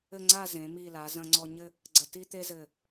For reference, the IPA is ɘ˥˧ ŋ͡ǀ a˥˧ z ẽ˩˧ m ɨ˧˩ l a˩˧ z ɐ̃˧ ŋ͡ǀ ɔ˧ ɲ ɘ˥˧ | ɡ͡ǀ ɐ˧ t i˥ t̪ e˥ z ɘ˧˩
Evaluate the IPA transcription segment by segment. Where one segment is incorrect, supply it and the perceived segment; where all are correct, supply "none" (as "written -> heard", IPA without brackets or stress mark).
ɨ˧˩ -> i˧˩